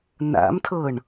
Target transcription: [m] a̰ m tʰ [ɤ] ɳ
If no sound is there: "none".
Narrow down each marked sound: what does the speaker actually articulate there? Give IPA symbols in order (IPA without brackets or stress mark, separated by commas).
n, ɤ